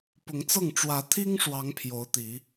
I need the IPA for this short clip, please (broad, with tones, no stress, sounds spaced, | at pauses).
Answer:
p ʊ˨˦ ŋ t͡s ɤ˥˨ ŋ ʈ͡ʂ w ä˨˦ t̪ʰ i˦ ŋ ʂ w ɑ˨˦ ŋ pʰ j o˨˦ ʊ̯ t̪ i˨˦